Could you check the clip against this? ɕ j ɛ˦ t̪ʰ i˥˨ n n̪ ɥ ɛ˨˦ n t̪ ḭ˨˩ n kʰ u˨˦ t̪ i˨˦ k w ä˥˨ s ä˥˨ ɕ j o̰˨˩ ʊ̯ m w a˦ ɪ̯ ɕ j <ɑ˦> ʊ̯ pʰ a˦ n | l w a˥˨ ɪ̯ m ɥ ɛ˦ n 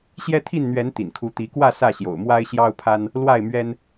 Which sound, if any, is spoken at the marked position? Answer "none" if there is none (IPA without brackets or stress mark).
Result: ɑ˦